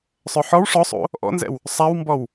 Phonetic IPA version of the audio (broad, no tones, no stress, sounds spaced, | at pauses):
sˤ œ ħ ɔ w ʂ ɔ sˤ o̰ | ʔ ɔ̰ n z ɛ̰ w | sˤ a w m b ɔ w